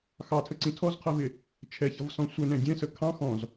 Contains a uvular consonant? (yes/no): yes